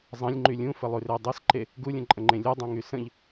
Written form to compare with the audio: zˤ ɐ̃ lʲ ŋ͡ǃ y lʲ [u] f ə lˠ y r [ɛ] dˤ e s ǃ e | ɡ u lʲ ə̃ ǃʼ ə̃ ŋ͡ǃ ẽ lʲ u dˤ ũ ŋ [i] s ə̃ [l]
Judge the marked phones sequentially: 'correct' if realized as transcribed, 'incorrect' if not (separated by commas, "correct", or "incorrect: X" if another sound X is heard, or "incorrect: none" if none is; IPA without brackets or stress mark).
incorrect: ũ, incorrect: e, incorrect: y, incorrect: ʎ